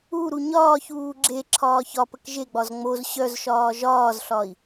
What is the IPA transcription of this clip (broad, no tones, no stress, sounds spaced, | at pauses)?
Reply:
u ɾ u ɲ ɒː ç uː ɡ͡ǁ e ǁʰ ɒː ç ɒ p ə k ʒ e ɡ͡b ɒ z ŋ͡m o z ɕ œ z ʃ ɒː ʒ ɒː z ɬ ɒ i̯